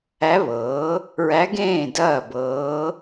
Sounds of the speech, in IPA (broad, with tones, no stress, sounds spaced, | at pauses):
æ˧˥ β ɤː˩˥ | ɹ æ˧˥ ɡ ẽː˥˩ d ɐː˥˩ b ɤː˧˥